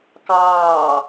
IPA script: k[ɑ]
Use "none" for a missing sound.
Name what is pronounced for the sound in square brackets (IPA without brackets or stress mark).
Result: ɑː